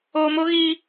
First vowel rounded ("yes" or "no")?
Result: yes